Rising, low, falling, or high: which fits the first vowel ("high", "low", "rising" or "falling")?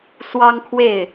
high